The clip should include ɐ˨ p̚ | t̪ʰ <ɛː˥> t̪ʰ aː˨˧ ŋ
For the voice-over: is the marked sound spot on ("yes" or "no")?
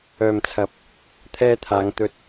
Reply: no